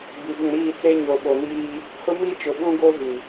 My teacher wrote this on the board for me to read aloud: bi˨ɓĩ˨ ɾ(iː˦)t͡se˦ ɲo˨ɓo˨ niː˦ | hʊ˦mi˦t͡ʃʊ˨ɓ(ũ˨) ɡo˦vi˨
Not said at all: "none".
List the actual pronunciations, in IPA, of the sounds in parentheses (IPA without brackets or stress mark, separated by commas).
iː˦˨, ũ˦